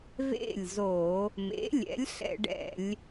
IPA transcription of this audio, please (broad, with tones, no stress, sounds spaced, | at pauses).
v ḛ˥˩ lʲ z o˧˩˧ | m ḛ˩˥ lʲ ɛ̰˩˥ lʲ ɬ ɛ̰˧˩˧ ɖ ɛ̰˧˩˧ lʲ